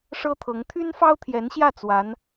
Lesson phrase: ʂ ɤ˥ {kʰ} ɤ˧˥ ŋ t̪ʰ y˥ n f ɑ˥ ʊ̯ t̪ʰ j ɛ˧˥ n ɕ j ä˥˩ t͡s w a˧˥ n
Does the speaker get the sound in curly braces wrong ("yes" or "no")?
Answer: yes